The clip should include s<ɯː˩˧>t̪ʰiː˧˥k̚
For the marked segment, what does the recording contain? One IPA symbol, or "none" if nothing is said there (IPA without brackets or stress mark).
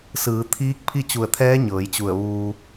ɯː˩˧